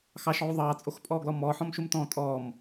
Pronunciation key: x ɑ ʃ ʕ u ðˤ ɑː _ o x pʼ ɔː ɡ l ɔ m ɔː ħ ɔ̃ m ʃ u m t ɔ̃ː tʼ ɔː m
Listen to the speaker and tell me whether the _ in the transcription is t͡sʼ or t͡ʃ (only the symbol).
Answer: t͡sʼ